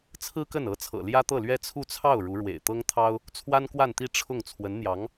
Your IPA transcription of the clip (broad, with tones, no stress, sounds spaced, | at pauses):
t͡sʰ ɹ̩˥ k ə˥˩ n ɤ˧˥ t͡sʰ ɤ̰˨˩ l j ä˥ t̪ ɤ˥˩ l ɥ ɛ˥ t͡sʰ u˥˧ t͡sʰ ɑ˥˩ ʊ̯ ɻ u˧˥ ɻ w ḛ˨˩ ɪ̯ t̪ ɤ˥ ŋ t̪ʰ ɑ˥ ʊ̯ | t͡sʰ w a˥ n k w a˥˧ n t̪ i˥˧ ʈ͡ʂʰ ʊ˥˩ ŋ t͡sʰ w ə˧˥ n n̪ j ɑ˧˥ ŋ